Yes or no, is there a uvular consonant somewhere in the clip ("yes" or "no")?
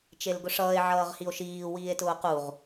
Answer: yes